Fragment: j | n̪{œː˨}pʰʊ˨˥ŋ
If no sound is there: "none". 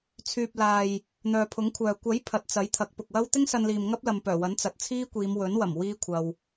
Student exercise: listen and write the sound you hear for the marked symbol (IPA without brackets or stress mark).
œː˨